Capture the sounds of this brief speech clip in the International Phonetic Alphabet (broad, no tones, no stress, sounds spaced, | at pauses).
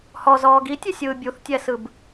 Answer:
h ɔ z ɔː ɡ i tʲ ʉ sʲ ɯː bʲ u θ tʲ ɛ s ɯ b